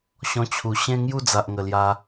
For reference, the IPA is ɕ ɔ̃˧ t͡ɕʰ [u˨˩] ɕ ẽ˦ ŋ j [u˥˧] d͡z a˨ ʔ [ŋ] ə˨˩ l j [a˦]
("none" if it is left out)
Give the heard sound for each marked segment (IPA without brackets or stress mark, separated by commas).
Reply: u˨˩, u˥˧, ŋ, a˧